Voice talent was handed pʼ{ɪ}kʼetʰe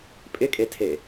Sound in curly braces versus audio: correct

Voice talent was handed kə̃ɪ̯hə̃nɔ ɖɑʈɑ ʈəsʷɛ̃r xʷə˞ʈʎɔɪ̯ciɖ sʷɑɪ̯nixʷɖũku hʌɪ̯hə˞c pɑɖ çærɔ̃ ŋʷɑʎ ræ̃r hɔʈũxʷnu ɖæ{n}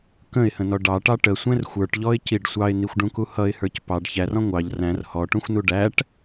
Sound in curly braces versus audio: incorrect: ʈ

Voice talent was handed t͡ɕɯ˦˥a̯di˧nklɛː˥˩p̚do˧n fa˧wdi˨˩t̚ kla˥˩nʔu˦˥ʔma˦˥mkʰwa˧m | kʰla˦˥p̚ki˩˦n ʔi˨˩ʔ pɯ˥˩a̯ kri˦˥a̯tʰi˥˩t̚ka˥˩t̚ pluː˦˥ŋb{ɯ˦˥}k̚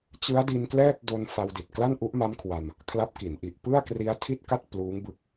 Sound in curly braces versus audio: correct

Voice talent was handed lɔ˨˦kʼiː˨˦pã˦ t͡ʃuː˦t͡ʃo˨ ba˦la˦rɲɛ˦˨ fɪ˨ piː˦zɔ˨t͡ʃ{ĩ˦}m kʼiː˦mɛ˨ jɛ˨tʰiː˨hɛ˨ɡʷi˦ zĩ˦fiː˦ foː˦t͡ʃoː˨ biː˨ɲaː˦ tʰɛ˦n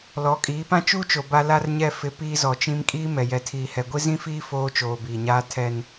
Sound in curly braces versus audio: correct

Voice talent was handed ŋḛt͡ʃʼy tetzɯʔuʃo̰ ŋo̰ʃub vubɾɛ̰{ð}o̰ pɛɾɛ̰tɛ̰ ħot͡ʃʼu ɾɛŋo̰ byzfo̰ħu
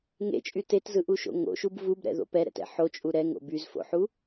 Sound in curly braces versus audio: correct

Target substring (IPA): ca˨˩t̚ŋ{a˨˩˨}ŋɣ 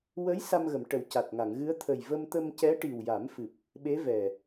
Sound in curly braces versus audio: correct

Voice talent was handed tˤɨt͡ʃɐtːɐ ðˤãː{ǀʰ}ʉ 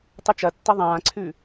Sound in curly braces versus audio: correct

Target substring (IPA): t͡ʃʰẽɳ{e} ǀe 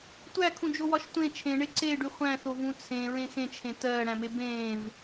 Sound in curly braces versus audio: correct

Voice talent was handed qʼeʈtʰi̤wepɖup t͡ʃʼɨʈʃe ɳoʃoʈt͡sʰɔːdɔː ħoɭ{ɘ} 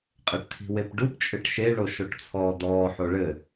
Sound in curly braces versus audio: correct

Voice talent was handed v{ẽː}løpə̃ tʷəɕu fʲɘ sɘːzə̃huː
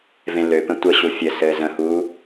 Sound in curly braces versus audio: incorrect: ẽ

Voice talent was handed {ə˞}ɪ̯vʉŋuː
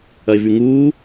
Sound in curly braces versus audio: incorrect: ɐ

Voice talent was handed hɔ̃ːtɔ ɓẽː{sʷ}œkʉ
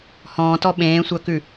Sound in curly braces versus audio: correct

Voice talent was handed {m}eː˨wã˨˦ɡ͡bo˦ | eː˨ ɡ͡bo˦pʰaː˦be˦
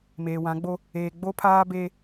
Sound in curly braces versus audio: correct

